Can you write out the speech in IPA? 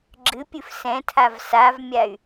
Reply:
ɡ͡ǁ ɨ pʲ ɨ f s ɛ̃ tʰ a v s a v mʲ a y̯

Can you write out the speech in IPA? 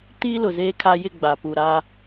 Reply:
t iː˦ l ʊ˨ z eː˦ kʰ a˦ j ɪ˦˨ ɡ͡b a˨ p u˨ ɾ a˦

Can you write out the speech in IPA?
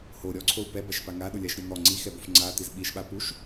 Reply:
h o ɾʲ ɔ ǀʰ o u̯ p ɛ b a ʃ p a ŋ a ɗ ʊ lʲ a ʃ ɾʲ ɔ n̪ ɔ ŋ͡ǀ i x ɛ b o f ŋ͡ǀ a t̪ i z ɓ i ʃ ɓ a p u ʃ

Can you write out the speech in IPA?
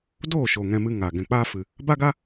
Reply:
d oː˦˨ ʃ o˨ ŋ ɛ̃˧ m ɨ˧ ŋ a˨ ɡ ɛ̃˨ k͡p aː˦ f ɨ˨ | b a˦ ɡ a˦

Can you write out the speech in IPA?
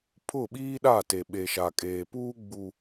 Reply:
pʰ ʊ˦˨ ɓ iː˦ ɗ a˦˨ t e˨ ɓ e˨ ʃ a˨ kʼ eː˨ p uː˦ ɡ͡b u˦

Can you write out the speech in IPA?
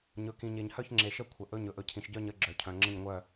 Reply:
ɲ ɵ˨ k ĩ˨ ɲ e˨ ɲ h œ˥˨ ç ŋ͡ǁ e˨ ʃ ə˥˨ kʷʰ ə˨ ʔ ɵ˥˨ ɲ ɵ˨ ʔ ɵ˨ cʰ ĩ˨ ʃ ɟ œ˥˨ ɲ ə˥˨ ɡ͡ǁ œ˨ cʰ œ̃˨ ŋ͡ǁ ə̃˥˨ ɲ ŋʷ œ˥˨

